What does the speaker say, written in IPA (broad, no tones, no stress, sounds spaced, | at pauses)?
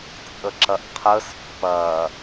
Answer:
t͡sʼ ə ǁ ɐ ʔ qʰ ə s pː ɐ